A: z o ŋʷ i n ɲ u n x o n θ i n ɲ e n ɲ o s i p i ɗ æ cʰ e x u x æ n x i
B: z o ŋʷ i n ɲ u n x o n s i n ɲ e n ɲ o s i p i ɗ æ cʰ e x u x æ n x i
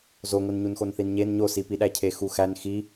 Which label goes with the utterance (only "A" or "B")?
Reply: A